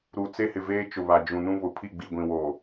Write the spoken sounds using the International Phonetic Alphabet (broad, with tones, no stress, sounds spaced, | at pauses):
ɾ u˨ t͡s e˦ h ɪ˨ v eː˦ t͡ʃ ʊ˨ β a˨ d͡ʒ ũ˨ n ũ˦ β ʊ˨ pʰ i˦˨ ɡ͡b i˨ ɡʷ ĩ˨ w oː˨